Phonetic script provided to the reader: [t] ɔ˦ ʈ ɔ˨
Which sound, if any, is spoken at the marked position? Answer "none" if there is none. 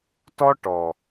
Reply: t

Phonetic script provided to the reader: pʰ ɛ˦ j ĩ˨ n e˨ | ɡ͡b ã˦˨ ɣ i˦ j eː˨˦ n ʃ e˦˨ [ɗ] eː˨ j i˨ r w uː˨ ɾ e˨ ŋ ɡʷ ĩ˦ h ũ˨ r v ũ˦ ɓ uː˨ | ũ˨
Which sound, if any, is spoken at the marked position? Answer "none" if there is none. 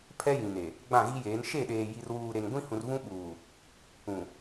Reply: ɗ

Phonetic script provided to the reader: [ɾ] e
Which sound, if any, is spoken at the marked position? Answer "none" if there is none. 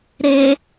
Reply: ɾ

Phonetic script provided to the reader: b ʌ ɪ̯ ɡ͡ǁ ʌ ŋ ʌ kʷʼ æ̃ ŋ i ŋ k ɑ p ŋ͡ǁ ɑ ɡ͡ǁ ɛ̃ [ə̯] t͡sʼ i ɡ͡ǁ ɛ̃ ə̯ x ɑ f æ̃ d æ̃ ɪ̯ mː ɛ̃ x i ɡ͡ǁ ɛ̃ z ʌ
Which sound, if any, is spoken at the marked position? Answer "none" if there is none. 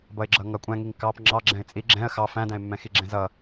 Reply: ɪ̯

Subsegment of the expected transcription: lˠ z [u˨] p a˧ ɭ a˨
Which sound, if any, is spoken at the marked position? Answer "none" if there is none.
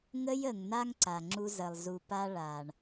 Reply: u˨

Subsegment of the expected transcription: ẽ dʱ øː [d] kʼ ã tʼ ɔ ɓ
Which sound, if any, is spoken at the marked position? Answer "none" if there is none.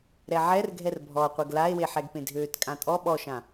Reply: t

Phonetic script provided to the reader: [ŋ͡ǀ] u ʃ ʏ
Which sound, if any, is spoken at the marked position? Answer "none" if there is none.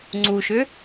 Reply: ŋ͡ǀ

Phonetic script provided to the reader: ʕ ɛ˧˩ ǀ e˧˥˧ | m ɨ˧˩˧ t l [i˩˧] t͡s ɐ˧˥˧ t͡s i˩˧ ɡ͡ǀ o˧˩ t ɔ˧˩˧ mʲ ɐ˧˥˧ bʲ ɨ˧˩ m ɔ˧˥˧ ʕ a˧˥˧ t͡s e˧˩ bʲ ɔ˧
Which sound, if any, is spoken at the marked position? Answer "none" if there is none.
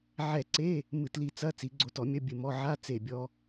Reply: i˧˩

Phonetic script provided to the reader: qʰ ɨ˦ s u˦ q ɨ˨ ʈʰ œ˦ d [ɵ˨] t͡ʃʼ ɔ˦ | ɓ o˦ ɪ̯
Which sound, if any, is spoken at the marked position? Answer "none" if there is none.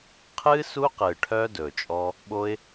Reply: ɵ˨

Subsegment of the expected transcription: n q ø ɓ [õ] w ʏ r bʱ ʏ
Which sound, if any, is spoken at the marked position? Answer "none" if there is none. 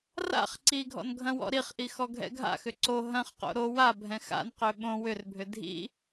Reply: õ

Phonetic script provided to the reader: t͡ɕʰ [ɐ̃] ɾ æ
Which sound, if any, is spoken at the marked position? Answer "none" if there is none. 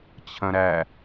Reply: ɐ̃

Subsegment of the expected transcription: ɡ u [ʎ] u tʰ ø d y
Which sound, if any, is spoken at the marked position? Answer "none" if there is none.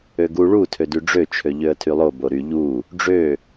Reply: ɭ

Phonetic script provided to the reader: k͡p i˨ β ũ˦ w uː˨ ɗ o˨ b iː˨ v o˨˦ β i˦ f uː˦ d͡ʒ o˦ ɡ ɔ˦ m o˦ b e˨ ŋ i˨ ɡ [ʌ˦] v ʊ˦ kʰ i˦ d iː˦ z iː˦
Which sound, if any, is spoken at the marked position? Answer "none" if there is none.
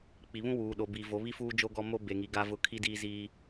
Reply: a˦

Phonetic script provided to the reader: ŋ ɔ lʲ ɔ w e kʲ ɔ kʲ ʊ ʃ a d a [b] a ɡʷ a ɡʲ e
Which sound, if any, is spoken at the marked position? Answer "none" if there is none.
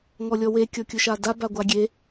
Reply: b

